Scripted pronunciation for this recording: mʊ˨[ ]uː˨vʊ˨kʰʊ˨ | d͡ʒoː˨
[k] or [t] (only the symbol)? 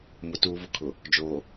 t